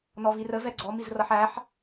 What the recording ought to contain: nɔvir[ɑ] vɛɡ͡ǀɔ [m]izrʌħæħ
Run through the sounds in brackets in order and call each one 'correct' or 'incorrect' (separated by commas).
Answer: incorrect, correct